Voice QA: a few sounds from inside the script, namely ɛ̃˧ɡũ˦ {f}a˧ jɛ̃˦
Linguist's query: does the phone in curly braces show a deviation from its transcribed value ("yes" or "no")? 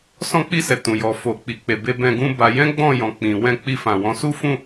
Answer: yes